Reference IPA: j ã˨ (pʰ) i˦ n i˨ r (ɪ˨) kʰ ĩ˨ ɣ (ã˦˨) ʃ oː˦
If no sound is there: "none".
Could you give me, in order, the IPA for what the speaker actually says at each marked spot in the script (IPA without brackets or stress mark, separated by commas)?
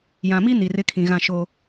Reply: m, ɪ˦, ã˦˨